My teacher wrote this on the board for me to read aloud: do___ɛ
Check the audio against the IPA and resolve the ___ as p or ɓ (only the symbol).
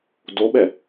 ɓ